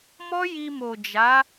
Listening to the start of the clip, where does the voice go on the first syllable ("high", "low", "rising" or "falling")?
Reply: high